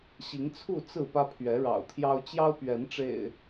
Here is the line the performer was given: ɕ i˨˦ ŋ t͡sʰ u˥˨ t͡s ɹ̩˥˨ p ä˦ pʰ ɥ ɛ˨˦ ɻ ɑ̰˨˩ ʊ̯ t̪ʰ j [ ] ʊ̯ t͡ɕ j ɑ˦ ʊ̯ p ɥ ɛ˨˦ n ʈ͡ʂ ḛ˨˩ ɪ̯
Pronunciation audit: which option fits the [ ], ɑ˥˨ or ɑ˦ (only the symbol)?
ɑ˦